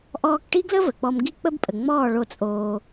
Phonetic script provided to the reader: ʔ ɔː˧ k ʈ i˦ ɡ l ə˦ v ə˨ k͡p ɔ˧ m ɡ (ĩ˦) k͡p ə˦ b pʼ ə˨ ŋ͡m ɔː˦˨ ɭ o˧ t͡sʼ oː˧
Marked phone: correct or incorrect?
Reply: incorrect: i˦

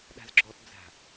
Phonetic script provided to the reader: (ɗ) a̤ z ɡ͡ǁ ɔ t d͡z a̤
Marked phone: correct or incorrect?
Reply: correct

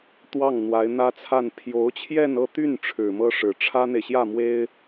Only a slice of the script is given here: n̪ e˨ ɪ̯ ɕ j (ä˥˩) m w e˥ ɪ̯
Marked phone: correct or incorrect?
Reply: correct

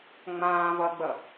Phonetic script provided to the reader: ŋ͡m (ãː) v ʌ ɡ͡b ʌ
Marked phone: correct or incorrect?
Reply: correct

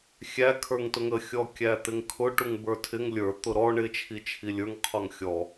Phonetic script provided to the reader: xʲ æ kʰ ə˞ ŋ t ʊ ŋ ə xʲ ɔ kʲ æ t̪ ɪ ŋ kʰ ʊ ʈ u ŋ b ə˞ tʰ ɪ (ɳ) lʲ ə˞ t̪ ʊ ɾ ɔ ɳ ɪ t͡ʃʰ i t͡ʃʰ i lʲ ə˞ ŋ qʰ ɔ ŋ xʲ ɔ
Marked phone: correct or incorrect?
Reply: incorrect: ŋ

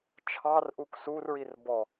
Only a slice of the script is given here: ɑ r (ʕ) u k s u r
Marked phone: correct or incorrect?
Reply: incorrect: ʔ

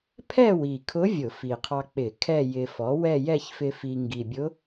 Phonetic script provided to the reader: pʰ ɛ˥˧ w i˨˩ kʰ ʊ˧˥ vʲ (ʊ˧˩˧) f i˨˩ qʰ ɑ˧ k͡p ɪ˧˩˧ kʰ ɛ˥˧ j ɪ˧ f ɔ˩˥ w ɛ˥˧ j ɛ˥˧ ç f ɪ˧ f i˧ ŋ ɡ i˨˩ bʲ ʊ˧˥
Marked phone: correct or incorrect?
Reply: correct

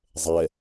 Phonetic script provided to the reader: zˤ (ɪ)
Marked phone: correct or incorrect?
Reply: incorrect: ɛ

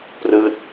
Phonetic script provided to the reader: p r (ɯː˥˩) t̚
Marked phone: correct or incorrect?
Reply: incorrect: ɯː˦˥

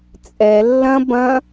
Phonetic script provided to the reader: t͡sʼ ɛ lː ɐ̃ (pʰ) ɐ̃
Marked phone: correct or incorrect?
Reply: incorrect: b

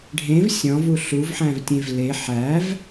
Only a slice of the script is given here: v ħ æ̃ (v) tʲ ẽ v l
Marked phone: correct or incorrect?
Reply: correct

